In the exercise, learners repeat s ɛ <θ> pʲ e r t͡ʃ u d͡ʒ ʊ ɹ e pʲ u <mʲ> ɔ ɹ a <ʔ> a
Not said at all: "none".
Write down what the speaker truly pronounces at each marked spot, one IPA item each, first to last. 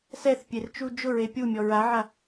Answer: θ, mʲ, ʕ

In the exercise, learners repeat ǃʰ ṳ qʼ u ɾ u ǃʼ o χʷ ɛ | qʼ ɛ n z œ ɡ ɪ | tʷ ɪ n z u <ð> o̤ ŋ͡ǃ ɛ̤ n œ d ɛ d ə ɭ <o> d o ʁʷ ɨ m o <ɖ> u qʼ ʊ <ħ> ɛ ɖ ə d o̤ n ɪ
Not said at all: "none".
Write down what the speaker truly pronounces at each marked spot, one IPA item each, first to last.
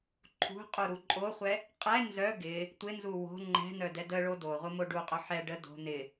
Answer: w, o, ɖ, ħ

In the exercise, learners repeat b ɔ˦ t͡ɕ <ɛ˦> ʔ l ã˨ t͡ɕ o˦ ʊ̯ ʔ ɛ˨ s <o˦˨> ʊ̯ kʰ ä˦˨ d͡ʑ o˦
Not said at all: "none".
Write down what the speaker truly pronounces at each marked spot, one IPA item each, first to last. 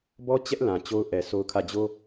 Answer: ɛ˦, o˦

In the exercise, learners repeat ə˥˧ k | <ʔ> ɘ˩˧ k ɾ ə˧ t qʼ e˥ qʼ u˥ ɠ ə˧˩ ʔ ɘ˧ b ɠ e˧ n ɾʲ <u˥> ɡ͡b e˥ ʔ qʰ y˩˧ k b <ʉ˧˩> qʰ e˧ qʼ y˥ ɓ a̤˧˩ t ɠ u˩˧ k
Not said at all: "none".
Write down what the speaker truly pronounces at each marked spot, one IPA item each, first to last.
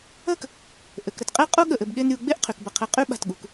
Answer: ʔ, u˩˧, ə˧˩

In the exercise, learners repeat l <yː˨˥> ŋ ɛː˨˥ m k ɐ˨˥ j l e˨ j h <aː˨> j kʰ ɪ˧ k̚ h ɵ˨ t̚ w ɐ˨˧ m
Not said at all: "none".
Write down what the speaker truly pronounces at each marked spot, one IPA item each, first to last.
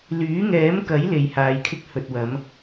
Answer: yː˨˥, aː˨

